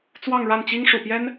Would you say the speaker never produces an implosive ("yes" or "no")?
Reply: yes